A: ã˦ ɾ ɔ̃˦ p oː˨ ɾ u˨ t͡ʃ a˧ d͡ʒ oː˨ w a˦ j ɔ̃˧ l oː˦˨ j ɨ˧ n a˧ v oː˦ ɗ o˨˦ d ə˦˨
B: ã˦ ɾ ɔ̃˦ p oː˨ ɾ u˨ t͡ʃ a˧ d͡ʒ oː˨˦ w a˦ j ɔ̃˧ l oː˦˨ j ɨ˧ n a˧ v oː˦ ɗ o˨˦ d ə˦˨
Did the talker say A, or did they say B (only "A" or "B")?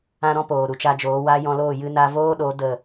B